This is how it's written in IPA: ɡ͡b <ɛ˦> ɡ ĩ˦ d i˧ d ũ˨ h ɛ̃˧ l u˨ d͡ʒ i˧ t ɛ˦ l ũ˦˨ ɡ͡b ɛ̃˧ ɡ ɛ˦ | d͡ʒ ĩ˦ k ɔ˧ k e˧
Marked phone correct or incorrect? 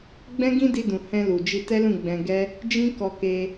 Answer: incorrect